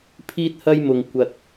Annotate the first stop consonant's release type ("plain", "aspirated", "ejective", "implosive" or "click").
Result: aspirated